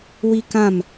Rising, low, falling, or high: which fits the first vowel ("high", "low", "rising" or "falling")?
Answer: high